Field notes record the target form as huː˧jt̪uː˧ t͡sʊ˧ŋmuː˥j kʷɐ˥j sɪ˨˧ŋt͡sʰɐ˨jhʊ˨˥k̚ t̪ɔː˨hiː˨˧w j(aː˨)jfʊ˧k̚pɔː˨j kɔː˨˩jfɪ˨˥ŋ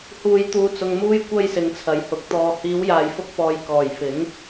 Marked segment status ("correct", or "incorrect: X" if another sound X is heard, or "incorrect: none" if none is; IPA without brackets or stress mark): correct